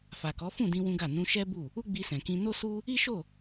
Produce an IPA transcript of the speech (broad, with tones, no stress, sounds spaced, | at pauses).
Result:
f a˨ k ɔ˨˦ f ũ˦˨ d ĩ˧ w ũ˦ ɡ a˦˨ n ũ˧ ʃ ɛ˦ b u˦˨ | u˦ ɡ͡b i˧ s ɛ̃˨ k ĩ˧ n o˦ s u˦ | i˦ ʃ o˦˨